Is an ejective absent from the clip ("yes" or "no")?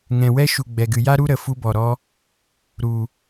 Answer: yes